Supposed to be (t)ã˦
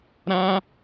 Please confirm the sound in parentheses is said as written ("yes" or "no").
no